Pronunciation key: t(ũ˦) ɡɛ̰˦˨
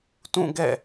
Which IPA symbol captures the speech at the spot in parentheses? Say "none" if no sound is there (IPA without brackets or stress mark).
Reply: ũ˦˨